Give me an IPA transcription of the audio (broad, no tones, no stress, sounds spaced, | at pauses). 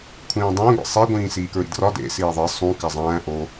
kʷʰ ĩː dˤ æ̃ ɡʷ ḭ sˤ e ɡʷ ĩː s iː k ɹ ḭ d r ɒ d ḛ s iː ðˤ e sˤ ũ k æ zˤ æ̃ː ʔ o